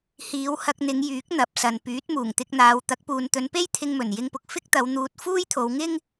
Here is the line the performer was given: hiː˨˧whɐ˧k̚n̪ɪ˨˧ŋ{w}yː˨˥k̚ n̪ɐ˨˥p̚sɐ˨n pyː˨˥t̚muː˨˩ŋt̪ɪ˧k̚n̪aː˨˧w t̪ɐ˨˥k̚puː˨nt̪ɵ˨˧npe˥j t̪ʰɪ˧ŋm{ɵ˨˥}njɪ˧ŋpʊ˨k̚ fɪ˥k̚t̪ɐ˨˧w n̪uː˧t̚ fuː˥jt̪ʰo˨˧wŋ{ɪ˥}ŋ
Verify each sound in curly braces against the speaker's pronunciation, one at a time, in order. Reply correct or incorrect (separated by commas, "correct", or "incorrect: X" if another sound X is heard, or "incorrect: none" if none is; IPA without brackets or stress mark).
incorrect: j, incorrect: ɵ˨˩, correct